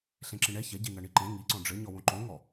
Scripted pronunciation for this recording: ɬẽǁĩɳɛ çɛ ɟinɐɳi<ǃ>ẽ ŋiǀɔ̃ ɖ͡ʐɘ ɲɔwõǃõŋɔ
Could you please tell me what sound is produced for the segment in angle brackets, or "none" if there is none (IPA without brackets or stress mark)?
ǃ